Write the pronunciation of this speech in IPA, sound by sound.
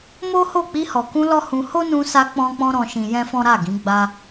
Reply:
m o˦ h o˦˨ k͡p i˧ h ɔ˨ k ũ˧ l ɔ˦ h ũ˧ h o˦ n ũ˧ s a˧ k͡p ɔ̃˦ k͡p ɔ̃˦ ɾ ɔ̃˧ ʃ ĩ˧ j ɛ̃˦ f ɔ̃˦ ɾ a˦˨ ɡ ĩ˨˦ ɡ͡b a˦

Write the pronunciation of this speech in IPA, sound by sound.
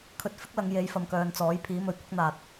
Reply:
kʰ ɵ˧ t̚ f ɪ˥ k̚ l ɐ˨˧ ŋ j e˨˧ j f ɐ˨ m k œː˨ n t͡s ɔː˨˥ j pʰ iː˨˥ m ɵ˨˧ ɥ kʷ ɪ˥ k̚ n̪ aː˧ t̚

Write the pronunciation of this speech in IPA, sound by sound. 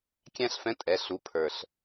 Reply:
kʲ æ̃˥ ɬ f ɛ̃˧˥ tʼ ɛ˩˧ ɬ u˩˧ pʰ ə˞˩ ɬ

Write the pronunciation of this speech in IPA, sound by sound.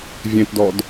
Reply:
vʲ ẽ t d ɔ d

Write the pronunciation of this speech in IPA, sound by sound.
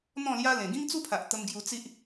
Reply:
n̪ ɔ̃˥˧ l j a˦ l ẽ˨˩ ɡ ĩ˦ ŋ t͡s u˦ pʰ a˨ ʔ t̪ ə˧ m ɡ j u˧ t͡s i˦ ʔ

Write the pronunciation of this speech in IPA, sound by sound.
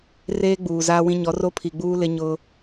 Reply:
r eː˦ ɡ͡b uː˨ z aː˦ w ĩ˦ ɲ ɔ˨˦ r o˦ pʰ i˨ ɡ͡b uː˦ l ɪ˦ ɲ ʊ˦

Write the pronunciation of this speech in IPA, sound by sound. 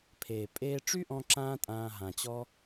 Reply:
pʰ eː˨ pʼ eː˧ ʈ͡ʂ y˦ ʔ ɔ̃˧ ǁ ãː˦ tʼ ãː˧ ɦ ã˨ t͡ɕ ɔ˦

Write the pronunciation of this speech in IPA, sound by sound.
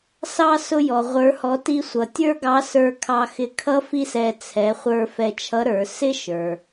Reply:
s ɑ˧ s ʊ˧ j ɔ˩ ʁʷ ə˞˩˧ h ɔ˩˧ t i˧ sʷ ʌ˩ tʲ ə˞˥ ɡ ɑ˧˥ s ə˞˧ kʰ ɑ˧ x ɪ˧ kʰ ʌ˥ f i˥ s ɛ˧ t͡sʰ ɛ˩˧ χʷ ə˞˧ f ɛ˧ t͡ʃʰ ʌ˧˥ ɾ ə˞˩˧ s ɪ˥ ʃ ə˞˩

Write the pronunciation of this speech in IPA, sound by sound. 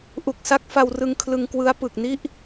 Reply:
ʔ u˨˩ k̚ s a˦˥ k̚ f a˧ w r ɯ˧ ŋ kʰ l ɯ˧ ŋ k w ɯ˦˥ a̯ p ɯ˨˩ k̚ n i˥˩ ʔ

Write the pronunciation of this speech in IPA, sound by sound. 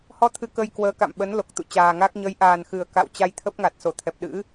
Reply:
h ɔ˧ t̪ʰ ɨ˧ k ə˧ j k w əː˨˦ k a̰˧˨ m ɓ ə˨˦ n l o˨˩ k̚ t̪ ṵ˧˨ t͡ɕ aː˨˩ ŋ a˦˥ k̚ ɲ ə˨˦ j ʔ aː˨˩ n x ɨ˨˩ ə̯ k a̰˧˨ w t͡ɕ a˧ j t̪ʰ ə˦˥ p̚ ŋ a˨˩ t̚ s o˧˩ t̪ʰ ɛ˨˩ p̚ ɗ ɨ̰˧˥

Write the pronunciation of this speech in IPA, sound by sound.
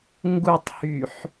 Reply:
ŋ ɡ u tˤ h y ħ

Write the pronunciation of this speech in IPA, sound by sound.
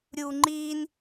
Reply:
ɾʲ uː ŋ͡ǃ iː n

